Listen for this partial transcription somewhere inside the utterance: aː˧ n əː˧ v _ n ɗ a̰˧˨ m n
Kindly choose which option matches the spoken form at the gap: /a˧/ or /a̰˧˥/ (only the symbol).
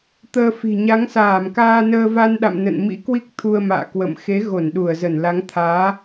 a˧